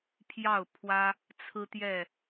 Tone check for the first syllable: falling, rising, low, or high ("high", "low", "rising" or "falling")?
falling